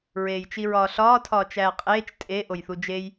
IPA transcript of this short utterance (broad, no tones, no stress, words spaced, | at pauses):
ɹeːjt͡ʃiɹɒːɬɒː tʰɒːt͡ʃæːqʼeːt͡ʃ tʼe ʔojθud͡ʒej